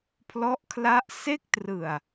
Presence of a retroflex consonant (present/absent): absent